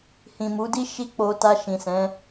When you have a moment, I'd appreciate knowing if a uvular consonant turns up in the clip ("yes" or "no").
no